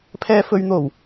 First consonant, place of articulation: labial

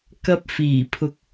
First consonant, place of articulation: velar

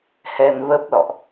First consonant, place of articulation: glottal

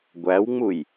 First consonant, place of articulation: velar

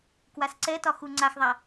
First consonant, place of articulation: velar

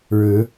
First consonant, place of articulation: retroflex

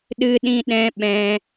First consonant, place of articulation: alveolar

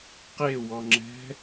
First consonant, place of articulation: uvular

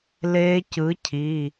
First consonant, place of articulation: alveolar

